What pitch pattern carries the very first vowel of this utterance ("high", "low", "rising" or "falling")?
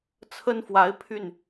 high